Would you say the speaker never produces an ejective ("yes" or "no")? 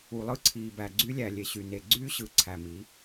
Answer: yes